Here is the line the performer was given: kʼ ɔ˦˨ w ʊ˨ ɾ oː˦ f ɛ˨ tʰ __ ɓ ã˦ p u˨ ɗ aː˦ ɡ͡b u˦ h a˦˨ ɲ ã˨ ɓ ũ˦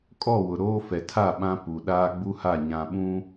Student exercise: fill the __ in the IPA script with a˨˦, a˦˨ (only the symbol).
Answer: a˦˨